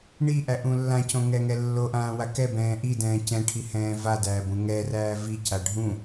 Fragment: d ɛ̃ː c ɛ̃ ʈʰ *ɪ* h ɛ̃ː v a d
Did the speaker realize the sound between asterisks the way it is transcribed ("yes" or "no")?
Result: no